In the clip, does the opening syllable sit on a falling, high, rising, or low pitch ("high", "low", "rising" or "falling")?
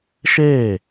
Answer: falling